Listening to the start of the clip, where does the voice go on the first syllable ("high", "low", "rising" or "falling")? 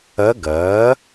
rising